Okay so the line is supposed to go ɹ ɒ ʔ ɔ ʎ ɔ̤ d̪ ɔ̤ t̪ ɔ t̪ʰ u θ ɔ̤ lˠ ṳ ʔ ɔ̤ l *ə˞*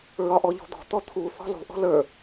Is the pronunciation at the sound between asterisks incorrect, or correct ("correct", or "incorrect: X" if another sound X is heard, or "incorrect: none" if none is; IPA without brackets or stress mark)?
correct